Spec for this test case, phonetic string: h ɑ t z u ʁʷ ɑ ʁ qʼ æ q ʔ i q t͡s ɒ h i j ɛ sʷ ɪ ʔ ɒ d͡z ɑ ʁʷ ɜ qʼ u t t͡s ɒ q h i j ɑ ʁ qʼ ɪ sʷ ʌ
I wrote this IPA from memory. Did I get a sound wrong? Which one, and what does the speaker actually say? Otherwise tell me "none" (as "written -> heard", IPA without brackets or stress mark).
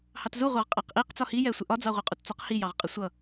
none